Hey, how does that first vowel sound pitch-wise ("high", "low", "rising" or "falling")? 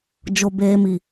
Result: low